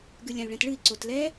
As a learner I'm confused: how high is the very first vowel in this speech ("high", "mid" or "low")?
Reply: high